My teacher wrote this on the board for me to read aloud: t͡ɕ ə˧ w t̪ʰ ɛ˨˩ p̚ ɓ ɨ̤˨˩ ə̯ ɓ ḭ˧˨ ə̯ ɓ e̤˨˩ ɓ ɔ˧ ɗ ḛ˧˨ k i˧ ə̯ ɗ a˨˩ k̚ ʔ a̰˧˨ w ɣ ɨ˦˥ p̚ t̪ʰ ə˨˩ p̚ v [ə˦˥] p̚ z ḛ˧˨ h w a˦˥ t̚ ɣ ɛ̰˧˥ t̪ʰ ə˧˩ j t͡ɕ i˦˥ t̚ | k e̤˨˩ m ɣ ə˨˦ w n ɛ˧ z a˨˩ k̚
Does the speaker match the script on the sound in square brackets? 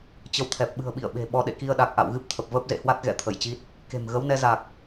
no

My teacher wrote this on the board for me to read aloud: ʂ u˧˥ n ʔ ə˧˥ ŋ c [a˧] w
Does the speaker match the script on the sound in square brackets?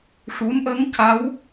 no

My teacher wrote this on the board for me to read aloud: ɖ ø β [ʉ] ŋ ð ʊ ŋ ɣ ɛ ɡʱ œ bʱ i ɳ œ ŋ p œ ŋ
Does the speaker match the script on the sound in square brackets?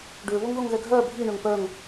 no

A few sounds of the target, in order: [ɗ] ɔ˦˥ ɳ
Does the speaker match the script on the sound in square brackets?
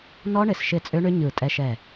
no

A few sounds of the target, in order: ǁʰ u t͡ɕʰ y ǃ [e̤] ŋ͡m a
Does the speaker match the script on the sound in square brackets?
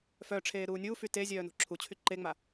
no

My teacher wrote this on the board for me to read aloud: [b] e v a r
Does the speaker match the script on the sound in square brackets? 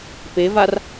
no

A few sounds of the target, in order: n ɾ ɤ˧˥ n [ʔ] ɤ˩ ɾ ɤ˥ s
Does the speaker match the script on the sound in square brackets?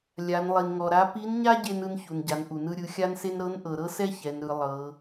yes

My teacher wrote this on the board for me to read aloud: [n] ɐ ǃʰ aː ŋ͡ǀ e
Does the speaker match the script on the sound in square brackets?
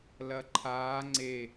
no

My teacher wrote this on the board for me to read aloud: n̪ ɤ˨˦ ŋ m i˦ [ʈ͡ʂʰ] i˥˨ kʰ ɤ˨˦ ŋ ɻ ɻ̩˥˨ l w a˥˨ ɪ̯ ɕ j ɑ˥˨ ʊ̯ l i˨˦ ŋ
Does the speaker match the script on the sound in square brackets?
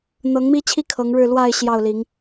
no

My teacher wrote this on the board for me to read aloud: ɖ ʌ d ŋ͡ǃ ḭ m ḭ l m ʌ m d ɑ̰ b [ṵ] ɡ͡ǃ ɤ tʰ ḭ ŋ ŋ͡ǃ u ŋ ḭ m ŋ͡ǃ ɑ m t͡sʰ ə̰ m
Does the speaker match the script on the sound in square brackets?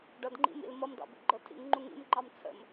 yes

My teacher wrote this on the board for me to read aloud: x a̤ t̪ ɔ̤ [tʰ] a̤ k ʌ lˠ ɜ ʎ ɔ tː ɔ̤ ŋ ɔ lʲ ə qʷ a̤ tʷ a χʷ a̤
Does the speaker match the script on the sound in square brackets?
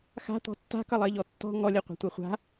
no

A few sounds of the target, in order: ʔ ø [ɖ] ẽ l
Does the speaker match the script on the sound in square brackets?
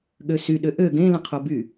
no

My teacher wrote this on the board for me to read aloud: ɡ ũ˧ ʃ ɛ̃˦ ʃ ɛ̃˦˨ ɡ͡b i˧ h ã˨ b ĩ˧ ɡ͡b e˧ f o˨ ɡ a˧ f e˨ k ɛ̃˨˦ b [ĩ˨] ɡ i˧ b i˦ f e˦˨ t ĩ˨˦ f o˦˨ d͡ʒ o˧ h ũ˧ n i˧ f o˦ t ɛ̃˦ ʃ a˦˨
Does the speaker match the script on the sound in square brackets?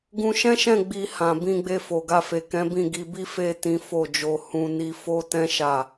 no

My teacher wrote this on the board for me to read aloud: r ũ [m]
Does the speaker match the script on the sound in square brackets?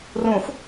no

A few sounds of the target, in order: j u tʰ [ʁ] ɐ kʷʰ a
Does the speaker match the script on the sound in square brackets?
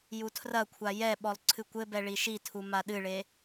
no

